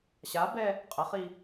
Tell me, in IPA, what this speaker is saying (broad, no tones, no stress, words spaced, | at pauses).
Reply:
ɕabɛ | qʼəχi